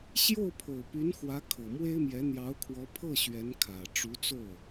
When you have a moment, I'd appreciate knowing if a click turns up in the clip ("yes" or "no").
no